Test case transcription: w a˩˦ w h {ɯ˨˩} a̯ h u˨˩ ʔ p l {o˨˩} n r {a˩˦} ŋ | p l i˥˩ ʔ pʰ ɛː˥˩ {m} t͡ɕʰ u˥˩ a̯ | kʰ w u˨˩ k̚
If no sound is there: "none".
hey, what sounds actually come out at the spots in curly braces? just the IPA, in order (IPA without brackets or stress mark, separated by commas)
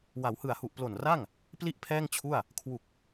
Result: ɯ˨˩, o˨˩, a˥˩, ŋ